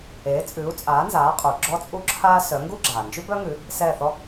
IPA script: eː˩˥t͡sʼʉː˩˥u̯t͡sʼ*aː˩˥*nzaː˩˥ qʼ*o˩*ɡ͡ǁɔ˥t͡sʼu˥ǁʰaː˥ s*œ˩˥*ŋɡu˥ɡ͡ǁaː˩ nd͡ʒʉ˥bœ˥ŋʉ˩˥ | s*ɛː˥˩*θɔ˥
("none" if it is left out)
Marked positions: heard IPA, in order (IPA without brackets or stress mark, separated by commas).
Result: aː˩˥, u˩, œ˩˥, ɛː˥˩